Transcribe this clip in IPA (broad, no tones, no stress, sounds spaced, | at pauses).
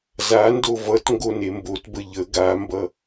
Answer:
z a n d o v ʌ t ŋ ɡ o n e m b o t b ə ʎ ə ɡ a m b ʌ